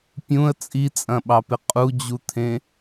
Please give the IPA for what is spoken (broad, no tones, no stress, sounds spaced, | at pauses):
pʲ ũ ə̯ t͡sʼ i t͡sʼ ɐ̃ ɓ ɑ p ɪ qʼ u d͡ʑ u t̪ʰ ẽ